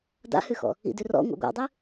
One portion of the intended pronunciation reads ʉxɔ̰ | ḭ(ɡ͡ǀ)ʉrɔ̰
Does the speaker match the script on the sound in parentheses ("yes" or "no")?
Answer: no